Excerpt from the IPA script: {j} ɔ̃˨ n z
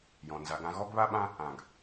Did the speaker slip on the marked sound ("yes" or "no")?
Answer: no